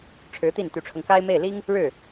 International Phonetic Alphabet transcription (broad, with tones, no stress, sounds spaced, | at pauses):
ʈ͡ʂʰ ɻ̩˧˥ t̪ i˥˩ n t̪ y˧˥ ʈ͡ʂʰ ɤ˧ ŋ k a˥ ɪ̯ m e˥˩ ɪ̯ l i˥ ŋ | ɻ ɻ̩˥˩